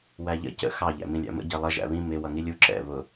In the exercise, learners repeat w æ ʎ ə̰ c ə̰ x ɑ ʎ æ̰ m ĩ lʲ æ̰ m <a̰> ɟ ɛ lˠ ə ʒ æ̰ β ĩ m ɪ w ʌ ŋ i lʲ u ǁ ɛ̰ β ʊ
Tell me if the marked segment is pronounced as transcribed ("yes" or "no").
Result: no